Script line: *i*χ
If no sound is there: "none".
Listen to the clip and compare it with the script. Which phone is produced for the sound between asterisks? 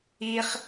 i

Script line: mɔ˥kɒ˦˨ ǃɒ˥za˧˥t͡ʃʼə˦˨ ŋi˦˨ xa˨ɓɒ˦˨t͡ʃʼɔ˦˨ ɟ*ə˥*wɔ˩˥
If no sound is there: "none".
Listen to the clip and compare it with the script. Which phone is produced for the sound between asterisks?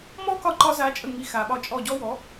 ɔ˥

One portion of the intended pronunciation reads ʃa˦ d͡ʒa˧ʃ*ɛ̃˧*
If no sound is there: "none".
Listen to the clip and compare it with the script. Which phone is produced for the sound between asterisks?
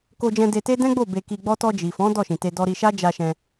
ɛ̃˧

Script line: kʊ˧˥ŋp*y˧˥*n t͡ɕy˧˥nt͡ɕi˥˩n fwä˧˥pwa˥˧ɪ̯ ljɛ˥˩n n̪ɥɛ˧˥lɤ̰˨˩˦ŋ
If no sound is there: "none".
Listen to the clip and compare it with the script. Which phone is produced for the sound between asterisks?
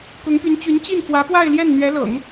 y˧˥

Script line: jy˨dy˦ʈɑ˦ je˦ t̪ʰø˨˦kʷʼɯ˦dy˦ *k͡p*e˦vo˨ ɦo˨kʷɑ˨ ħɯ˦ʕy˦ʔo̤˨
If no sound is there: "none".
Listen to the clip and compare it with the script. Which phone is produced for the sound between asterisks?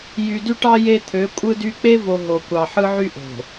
k͡p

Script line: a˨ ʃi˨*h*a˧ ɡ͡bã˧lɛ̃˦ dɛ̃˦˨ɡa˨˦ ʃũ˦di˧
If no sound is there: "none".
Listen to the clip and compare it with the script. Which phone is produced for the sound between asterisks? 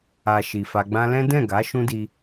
f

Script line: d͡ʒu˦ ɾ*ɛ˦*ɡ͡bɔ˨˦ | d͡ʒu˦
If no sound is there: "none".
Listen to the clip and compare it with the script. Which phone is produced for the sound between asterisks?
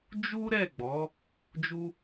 ɛ˦˨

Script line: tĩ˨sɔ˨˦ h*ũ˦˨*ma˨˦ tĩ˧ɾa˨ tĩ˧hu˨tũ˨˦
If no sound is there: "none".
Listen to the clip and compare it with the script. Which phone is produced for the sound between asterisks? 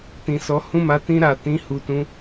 ũ˦˨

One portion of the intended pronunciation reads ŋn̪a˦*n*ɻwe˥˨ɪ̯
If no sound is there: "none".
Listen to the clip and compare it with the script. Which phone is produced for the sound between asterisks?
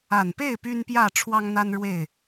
n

